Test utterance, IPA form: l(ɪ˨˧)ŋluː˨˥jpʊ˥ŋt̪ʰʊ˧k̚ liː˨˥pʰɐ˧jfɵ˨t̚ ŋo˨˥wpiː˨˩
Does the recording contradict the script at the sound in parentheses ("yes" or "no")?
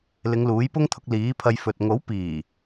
no